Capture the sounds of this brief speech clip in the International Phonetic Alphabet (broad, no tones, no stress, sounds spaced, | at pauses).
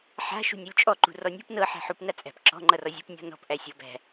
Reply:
ħ a̤ ʃ ṳ nʲ ɔ lʲ t͡ʃʼ ɔ ǃ ṳ r ɔ nʲ ṳ p n ɤ ħ æ̤ ħ u p n a t͡sʼ æ̤ p ǁ ɔ̤ ŋ͡ǃ ʌ r ɔ zʲ ṳ p nʲ ɔ̤ n ɔ̤ p ʔ æ sʲ ɤ b æ̤